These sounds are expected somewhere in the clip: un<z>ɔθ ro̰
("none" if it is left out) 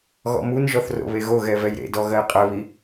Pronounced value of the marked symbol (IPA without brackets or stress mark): ʒ